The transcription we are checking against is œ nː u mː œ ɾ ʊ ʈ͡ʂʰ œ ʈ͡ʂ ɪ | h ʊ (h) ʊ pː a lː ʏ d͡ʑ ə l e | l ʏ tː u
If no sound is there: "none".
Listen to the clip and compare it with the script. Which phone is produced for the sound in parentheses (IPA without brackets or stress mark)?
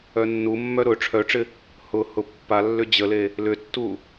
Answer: h